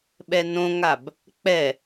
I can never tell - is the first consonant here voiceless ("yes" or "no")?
no